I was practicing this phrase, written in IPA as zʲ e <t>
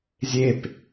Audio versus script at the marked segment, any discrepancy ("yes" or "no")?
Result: yes